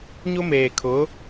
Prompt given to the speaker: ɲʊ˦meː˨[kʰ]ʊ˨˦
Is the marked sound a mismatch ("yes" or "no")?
no